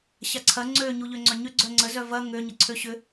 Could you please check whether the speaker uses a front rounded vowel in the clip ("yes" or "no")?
yes